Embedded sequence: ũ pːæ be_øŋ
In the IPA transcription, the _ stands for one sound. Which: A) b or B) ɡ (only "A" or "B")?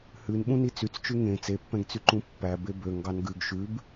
A